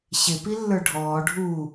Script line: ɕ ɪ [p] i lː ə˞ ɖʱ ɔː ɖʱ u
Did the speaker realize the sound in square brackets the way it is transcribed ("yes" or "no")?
yes